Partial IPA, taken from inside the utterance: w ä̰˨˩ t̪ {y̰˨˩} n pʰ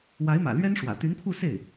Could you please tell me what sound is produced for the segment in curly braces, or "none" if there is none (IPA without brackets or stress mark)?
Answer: y˧˥